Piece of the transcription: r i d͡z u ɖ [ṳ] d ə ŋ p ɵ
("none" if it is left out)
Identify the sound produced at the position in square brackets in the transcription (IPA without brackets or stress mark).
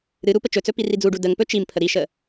u